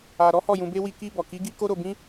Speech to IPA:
a˧ ɾ ɔ˦ h ɔ˦˨ j ũ˧ b e˦ w i˧ k i˧ b ɔ˨ k i˨˦ ɡ i˦ k o˦ ɾ o˧ b ĩ˦

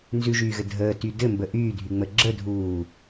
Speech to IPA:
n z ʉ ʒ yː ɣ ɘ dʱ əː t y d ɘ m b ə ʔ yː dʱ y ŋ͡m ə ɡ͡ǁ ə dʱ uː

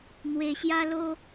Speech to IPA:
n̪ w e˧ ɕ j a˦ l o˦

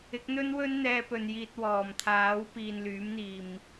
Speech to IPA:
ɪ˨˥ k̚ n̪ ɵ˥ n w ɵ˥ n n̪ ɛː˧ p ɵ˨ n j iː˧ t̚ w ɔː˨˩ m t̪ʰ aː˨˥ w p iː˨ n l yː˨˥ m n̪ iː˨ m

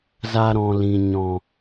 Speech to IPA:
z a˧ ɾ ɔ̃˨ l ĩ˨ ɲ ɔ̃˨

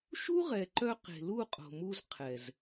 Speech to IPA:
ʃ u˦ ʁ ɛ˨ ǃ œ˧ q e̤˨ l u˦˨ qʼ o̤˨ m u˧ z qʰ ɛ˨ z

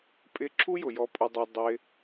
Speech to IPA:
pʼ ɪ˧ ǁʰ u˦ j ʊ˨ j ɔ˧ pʼ ʊ˧ dˤ ɑ˧ dˤ ɪ˧

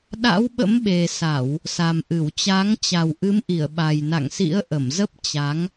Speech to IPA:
ɗ a̰˧˥ w ɓ ə̰˧˥ m ɓ e˨˩ s a˧˩˨ w | s a˨˩ m ʔ ɨ˧˩ w t͡ɕ a˨˦ ŋ t͡ɕ a˨˩ w ʔ ɨ˨˦ m ʔ i˧˩ ə̯ ɓ a˨˩ j n a̰˧˨ ŋ s ḭ˧˥ ə̯ ʔ ə˧˩ m z ə˦˥ p̚ t͡ɕ a˨˦ ŋ

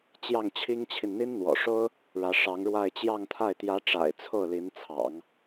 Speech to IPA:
t͡ɕ j ɑ˥˩ ŋ t͡ɕʰ i˥ ŋ t͡ɕʰ i˨ n n̪ i˥ n n̪ w ɔ̰˨˩ ʂ o˥ ʊ̯ | ɻ ä˧˥ ʂ ɑ˧˥ ŋ ɻ w a˥˧ ɪ̯ t͡ɕ j ɑ˥˧ ŋ t̪ʰ a˥˩ ɪ̯ t̪ j ä˧˥ ʈ͡ʂ a̰˨˩ ɪ̯ t͡sʰ o˥˩ ʊ̯ l i˧˥ n t͡sʰ ɑ̰˨˩˦ ŋ

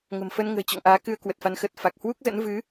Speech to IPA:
ŋ ə̤˨˩ m f ə˧ n ŋ ə̤ː˨˩ t͡ɕ ɔ̰˧˨ ŋ ʔ aː˨˦ k ɨ˧ ə̯ k w ə˨˩ t̚ f a˨˦ n x ə˨˩ t̚ f a˨˩ k̚ h w u˦˥ k̚ z ə̰˧˥ n v ɨ˨˦

